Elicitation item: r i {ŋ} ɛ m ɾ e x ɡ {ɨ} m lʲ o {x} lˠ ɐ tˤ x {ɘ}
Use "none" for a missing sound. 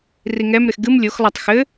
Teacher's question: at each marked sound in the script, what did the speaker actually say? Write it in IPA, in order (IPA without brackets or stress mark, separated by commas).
ŋ, ɨ, x, ɘ